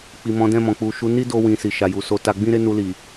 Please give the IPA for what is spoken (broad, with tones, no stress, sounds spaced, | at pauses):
k͡p i˨ m ɔ̃˨˦ d ɛ̃˦˨ m ɔ̃˨ k͡p u˨ ʃ u˨˦ n i˦ d o˧ w ĩ˨ s i˨ ʃ a˨ j u˨ s o˧ t a˧ ɡ͡b ĩ˦ ɾ e˦ n u˧ l i˨